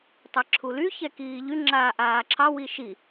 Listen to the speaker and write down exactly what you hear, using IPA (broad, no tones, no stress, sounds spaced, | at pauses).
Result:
tˤ ɛ ǁʰ u l y ç ɛ k iː ʎ y ŋ͡ǁ aː ʔ aː ǁʰ ɑ w i ʃ i